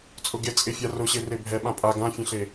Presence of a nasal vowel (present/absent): present